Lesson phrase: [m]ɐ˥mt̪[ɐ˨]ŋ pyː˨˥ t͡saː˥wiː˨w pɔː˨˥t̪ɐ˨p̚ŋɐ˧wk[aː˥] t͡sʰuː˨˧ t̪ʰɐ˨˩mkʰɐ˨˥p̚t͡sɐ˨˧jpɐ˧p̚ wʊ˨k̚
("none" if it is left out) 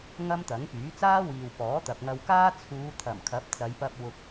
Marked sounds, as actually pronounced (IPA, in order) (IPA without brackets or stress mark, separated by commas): ŋ, ɐ˨˥, aː˥